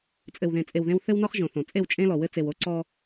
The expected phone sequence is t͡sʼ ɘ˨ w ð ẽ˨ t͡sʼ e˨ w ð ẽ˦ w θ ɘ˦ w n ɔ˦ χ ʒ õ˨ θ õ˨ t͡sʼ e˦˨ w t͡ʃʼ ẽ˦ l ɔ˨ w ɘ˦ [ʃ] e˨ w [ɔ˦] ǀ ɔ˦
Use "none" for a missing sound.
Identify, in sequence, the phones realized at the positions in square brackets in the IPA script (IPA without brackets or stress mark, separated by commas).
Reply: t͡s, o˦